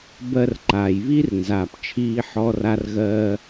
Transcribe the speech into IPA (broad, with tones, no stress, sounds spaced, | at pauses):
b ɜ˧ r ǃ aː˩ j β i˥ r n z aː˩ p t͡ʃʰ iː˧ ħ ɔ˧ r a˧ r ɣ ɜː˧